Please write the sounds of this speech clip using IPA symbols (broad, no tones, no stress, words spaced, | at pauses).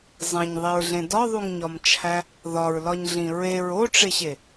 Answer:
zˤẽɲðˤiɹɮẽ dɒðˤuŋɲɒmt͡ʃʰæ | ðɒɹlɒɲɮĩ ɹeɹ oʈ͡ʂeɕe